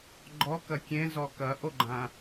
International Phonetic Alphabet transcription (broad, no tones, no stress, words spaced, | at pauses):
ɡ͡ǃɔkɐ kʲẽzɔ kɐʔoɡ͡ǃã